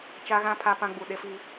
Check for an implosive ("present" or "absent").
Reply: present